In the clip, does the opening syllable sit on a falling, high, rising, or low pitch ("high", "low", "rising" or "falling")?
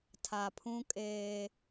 low